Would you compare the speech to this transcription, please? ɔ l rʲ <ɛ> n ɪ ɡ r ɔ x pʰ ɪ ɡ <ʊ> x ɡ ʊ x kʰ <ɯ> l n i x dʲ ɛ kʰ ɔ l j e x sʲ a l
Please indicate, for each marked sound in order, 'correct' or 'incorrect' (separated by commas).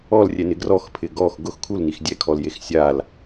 correct, incorrect, incorrect